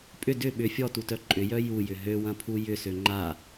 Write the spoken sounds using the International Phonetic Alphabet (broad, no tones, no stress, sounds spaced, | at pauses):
pʼ ʏ d ʏ ɓ ʏ fʲ ɔ t u t œ ǃʼ ʏ j œ j u j ʏ ɦ ø w ɐ̃ pʰ u j ʏ s ø ŋ͡ǃ a